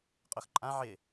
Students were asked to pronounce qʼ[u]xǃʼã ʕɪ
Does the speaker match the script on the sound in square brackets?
no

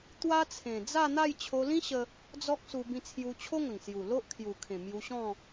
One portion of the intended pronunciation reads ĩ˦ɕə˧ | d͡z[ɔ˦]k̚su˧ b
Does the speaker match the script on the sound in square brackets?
yes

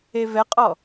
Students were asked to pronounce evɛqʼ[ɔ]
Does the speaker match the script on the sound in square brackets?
yes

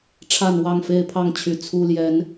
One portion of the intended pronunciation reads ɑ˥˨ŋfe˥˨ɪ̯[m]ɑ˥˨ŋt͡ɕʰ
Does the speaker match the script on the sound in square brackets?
no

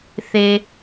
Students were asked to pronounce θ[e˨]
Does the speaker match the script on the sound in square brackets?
yes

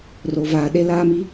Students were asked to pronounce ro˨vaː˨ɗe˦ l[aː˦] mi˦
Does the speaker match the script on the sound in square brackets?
yes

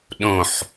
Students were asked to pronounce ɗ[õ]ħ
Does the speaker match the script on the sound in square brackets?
yes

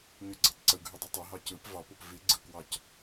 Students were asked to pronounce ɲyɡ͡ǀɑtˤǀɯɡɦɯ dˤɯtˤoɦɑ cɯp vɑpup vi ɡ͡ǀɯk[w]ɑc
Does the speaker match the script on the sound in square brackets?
yes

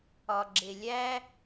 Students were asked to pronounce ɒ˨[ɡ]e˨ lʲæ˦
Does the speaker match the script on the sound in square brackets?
no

